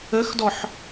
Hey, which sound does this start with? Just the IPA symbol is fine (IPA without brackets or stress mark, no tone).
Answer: ə